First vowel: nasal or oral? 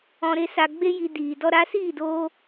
nasal